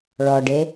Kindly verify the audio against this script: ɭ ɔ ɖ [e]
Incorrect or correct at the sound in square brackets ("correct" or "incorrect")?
correct